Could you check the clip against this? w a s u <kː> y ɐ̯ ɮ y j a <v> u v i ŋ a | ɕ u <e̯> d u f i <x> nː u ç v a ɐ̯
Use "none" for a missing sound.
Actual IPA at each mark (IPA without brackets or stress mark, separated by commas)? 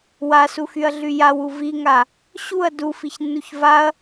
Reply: x, w, ɐ̯, ç